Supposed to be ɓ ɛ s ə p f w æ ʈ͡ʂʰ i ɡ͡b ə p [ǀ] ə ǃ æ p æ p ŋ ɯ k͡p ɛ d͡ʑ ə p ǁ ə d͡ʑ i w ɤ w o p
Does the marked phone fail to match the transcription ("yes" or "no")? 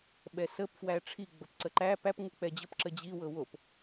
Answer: no